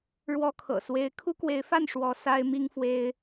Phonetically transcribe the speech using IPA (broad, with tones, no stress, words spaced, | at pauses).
ɻwɔ˦kʰɤ̰˨˩ swe˦ɪ̯ kʰu˦kwe˨˦ɪ̯fa˥˨n ʂwɔ˨˦ sa˦ɪ̯mi˦ŋfwe˦ɪ̯